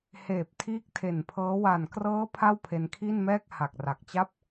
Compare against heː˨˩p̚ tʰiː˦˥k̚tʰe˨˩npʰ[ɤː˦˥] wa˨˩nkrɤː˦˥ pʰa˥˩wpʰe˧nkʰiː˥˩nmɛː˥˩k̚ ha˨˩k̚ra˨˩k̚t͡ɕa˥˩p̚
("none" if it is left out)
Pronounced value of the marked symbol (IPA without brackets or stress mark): ɤː˦˥